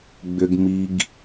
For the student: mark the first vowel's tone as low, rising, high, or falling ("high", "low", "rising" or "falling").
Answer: low